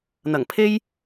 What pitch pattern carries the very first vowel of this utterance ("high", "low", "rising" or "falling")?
low